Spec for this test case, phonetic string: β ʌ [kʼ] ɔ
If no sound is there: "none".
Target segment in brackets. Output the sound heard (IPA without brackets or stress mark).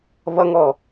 ŋ